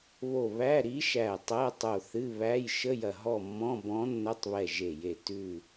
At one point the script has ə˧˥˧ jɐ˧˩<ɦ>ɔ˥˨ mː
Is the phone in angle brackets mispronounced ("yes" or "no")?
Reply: no